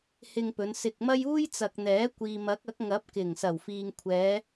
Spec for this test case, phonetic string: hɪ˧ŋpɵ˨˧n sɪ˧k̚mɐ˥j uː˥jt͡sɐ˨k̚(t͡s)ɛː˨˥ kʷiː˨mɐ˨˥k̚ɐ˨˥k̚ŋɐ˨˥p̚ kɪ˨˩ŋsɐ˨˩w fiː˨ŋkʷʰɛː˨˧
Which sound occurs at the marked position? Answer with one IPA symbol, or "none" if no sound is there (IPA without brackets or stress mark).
n̪